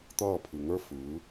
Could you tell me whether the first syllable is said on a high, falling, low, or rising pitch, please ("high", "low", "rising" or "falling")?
falling